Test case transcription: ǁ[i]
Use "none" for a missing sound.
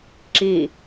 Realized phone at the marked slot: i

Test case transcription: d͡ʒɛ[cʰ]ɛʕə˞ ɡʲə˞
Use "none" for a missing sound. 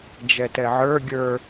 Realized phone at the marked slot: t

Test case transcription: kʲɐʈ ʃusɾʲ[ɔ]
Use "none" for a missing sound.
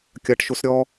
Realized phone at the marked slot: ɔ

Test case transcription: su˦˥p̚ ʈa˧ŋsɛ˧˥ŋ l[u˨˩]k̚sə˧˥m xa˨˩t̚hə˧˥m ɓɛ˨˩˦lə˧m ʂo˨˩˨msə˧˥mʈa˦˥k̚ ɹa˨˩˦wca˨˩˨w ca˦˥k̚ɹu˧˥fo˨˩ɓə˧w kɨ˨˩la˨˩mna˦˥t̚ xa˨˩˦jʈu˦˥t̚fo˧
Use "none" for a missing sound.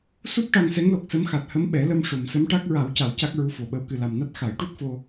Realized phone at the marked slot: o˨˩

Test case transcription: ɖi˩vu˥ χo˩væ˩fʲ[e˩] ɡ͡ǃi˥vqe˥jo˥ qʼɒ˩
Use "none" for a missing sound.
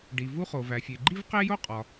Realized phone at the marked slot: e˩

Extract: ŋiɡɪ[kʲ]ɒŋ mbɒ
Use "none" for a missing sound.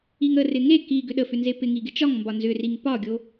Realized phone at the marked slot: t͡ʃ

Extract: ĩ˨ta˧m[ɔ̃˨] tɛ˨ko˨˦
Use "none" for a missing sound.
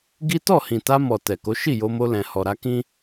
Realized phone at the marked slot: ɔ˨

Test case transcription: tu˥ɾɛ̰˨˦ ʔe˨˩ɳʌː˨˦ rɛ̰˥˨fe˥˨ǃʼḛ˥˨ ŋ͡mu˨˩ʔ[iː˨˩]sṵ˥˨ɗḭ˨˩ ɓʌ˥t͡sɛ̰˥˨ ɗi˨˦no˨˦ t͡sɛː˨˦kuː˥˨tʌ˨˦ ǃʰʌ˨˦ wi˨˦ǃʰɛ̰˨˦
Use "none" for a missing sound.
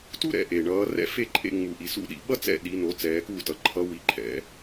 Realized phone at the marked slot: i˨˩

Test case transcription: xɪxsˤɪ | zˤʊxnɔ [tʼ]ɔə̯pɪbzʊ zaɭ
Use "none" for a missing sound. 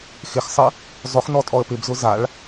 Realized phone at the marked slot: tʼ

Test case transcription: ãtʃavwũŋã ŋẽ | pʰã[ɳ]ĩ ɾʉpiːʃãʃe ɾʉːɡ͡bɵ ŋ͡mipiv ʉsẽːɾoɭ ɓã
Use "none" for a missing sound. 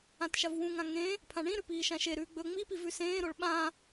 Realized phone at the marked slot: ɳ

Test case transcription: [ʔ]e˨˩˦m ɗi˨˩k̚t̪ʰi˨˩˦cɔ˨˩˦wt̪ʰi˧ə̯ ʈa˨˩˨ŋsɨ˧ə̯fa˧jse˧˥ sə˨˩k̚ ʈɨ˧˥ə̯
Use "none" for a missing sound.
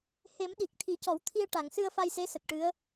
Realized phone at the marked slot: h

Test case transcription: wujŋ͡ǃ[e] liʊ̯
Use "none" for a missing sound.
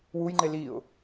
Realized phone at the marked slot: e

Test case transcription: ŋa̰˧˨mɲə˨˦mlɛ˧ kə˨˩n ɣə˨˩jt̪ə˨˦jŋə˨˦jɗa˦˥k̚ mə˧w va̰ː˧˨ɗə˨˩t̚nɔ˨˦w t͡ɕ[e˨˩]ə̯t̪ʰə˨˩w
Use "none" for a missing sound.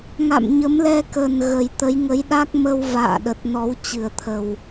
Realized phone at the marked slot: ɨ˨˩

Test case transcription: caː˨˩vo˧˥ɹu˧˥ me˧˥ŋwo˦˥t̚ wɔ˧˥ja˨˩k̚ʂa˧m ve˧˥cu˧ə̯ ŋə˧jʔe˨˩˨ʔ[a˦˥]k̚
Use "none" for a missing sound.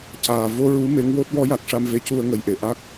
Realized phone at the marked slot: a˦˥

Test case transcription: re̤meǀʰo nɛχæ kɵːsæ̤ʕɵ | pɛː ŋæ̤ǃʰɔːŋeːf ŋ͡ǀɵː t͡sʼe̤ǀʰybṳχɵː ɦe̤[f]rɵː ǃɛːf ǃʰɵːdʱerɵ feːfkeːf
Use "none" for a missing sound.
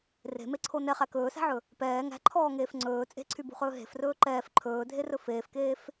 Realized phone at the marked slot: f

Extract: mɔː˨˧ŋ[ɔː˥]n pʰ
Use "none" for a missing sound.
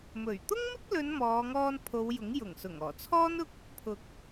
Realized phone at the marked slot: ɔː˧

